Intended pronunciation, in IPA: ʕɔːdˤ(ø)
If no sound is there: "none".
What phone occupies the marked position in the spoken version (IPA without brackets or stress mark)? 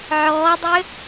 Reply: ø